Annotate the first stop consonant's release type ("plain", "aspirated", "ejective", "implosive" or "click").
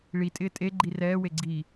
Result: ejective